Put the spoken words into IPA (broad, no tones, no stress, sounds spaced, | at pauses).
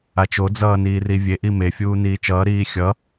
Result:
a t͡ʃ o d͡z ʌː n iː r i vʲ e ʔ i m e fʲ uː n iː t͡ʃ ʌː ɾ iː xʲ ʌ